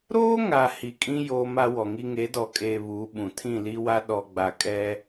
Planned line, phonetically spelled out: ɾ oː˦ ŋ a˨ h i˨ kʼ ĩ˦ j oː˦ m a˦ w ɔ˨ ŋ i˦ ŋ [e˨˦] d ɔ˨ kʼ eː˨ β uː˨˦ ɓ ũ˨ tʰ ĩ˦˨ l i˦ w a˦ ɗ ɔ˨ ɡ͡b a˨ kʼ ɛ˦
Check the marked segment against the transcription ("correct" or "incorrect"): correct